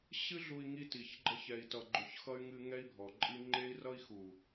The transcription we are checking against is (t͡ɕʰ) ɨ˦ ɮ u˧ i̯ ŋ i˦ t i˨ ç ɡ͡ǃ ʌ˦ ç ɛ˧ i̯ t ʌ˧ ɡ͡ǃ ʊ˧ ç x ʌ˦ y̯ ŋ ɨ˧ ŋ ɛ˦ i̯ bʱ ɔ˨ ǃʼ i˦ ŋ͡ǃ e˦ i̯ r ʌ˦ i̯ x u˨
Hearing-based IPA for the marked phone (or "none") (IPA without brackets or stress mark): ɕ